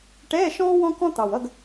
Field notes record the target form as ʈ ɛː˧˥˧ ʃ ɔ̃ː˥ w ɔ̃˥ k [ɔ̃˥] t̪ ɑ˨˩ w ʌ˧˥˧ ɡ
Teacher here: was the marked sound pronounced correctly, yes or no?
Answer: yes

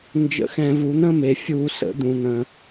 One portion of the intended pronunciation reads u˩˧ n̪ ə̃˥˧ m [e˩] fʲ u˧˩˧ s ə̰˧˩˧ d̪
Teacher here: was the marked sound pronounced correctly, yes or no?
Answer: yes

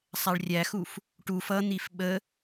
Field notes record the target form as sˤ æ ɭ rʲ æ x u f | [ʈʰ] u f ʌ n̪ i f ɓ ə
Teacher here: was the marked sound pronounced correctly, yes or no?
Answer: no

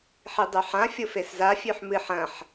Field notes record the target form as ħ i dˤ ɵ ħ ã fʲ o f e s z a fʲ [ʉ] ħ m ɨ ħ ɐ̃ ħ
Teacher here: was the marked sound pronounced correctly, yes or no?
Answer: yes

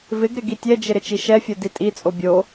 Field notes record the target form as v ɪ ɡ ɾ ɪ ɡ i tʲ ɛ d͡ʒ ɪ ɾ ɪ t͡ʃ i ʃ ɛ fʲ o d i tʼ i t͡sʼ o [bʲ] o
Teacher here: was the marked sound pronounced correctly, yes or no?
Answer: yes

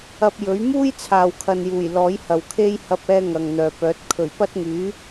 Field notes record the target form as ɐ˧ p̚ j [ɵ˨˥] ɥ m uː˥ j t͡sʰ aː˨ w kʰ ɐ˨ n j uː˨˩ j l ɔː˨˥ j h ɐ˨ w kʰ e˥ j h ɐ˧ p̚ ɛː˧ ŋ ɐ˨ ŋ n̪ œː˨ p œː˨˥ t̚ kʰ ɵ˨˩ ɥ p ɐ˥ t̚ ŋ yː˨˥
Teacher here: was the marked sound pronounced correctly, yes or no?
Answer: yes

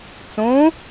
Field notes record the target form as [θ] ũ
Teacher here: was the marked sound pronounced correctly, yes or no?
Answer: no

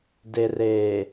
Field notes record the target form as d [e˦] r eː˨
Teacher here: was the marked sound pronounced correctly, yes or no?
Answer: no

